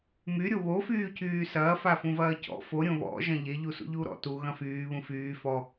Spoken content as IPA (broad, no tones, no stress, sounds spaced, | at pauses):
m y ɾʲ o β o f yː c yː s ɐː f a f ũ v ɐː c ɔ̰ f o ɾʲ õ β ɔ̰ ʒ ɐ̃ ʎ e ʎ u s ṵ ʎ uː ɾ ɔ̰ t u ɣ ɐ̃ f yː β ũ f yː f ɔ